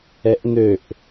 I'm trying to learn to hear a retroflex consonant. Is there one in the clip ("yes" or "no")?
no